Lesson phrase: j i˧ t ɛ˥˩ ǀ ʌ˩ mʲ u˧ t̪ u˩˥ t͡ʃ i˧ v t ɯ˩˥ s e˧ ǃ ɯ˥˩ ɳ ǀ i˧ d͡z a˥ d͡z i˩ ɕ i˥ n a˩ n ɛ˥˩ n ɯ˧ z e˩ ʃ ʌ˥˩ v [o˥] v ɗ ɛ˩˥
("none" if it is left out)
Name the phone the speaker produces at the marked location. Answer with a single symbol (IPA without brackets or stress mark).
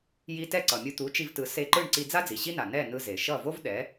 o˥